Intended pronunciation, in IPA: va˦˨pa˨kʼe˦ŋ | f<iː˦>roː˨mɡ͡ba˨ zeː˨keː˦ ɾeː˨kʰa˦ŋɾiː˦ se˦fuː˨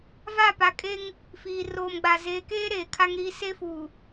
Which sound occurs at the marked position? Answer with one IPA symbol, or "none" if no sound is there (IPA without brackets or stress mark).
iː˨